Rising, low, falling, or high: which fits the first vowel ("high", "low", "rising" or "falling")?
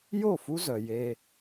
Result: falling